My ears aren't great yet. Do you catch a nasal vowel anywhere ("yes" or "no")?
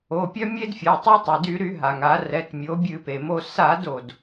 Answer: no